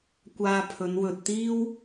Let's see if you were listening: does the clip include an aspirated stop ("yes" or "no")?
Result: yes